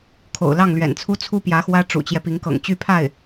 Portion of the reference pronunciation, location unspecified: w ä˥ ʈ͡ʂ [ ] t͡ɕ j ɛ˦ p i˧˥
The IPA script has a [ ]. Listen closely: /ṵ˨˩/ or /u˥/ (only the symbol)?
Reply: ṵ˨˩